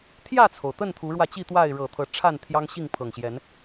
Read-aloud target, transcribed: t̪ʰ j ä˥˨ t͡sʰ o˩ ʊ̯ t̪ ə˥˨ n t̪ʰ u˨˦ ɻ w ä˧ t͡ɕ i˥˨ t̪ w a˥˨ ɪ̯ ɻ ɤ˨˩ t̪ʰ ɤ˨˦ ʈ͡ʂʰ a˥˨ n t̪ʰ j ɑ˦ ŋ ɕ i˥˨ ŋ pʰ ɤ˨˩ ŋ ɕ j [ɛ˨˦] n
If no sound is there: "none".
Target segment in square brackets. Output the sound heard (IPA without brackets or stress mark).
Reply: ɛ˨˦